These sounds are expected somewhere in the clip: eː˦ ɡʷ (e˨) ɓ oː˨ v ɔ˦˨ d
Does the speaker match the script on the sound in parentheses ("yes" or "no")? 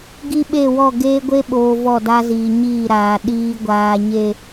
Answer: no